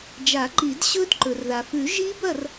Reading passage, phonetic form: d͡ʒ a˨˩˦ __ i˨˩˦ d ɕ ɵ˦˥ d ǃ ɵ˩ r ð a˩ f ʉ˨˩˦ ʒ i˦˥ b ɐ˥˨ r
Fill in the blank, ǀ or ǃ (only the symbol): ǃ